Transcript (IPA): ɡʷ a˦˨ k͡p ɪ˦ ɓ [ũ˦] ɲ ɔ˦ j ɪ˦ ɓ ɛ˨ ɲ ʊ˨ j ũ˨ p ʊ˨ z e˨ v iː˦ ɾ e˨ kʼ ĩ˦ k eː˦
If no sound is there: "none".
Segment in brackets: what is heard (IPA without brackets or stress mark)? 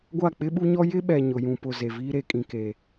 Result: u˦